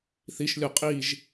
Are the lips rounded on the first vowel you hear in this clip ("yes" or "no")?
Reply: no